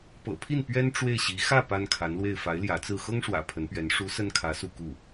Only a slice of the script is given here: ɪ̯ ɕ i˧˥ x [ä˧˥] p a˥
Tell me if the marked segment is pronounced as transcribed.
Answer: no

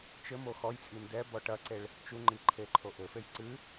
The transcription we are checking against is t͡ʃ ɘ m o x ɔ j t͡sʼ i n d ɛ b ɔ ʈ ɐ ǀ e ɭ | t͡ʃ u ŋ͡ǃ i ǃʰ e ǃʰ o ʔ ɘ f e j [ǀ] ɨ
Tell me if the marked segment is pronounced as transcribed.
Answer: yes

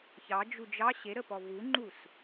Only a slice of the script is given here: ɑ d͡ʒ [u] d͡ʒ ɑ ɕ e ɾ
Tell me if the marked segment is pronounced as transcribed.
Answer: yes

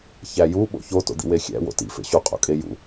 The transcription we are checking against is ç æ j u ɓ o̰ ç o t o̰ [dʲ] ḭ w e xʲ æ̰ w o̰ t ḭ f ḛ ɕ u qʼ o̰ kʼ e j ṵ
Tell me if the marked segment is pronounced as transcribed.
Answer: no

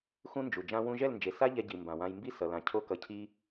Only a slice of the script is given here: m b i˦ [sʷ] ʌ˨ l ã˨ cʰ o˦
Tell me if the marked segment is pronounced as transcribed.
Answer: no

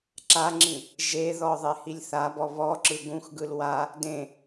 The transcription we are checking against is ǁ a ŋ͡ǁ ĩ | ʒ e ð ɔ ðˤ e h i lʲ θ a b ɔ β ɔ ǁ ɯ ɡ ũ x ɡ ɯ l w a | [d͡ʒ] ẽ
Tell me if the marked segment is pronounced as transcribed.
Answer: no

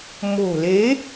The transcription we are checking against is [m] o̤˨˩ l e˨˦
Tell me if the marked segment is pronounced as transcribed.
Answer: yes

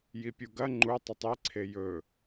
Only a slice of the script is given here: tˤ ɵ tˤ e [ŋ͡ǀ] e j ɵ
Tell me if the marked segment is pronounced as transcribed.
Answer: no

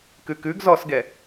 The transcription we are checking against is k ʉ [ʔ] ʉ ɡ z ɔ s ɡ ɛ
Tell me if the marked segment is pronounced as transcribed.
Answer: no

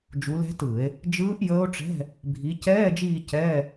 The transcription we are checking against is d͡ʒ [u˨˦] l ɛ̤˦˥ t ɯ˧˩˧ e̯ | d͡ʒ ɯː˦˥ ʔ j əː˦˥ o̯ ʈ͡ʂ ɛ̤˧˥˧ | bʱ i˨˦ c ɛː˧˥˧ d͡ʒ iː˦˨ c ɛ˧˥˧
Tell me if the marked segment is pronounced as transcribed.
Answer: yes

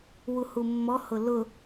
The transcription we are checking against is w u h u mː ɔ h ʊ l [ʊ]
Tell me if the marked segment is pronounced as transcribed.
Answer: yes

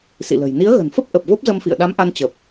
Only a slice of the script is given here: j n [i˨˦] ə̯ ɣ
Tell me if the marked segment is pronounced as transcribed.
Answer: yes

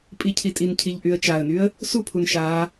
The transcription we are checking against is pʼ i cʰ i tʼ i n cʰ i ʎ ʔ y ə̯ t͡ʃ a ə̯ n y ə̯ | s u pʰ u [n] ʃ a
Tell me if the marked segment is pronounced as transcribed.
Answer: yes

